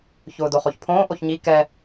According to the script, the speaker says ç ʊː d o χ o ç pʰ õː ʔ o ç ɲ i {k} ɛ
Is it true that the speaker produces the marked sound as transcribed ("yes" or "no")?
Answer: yes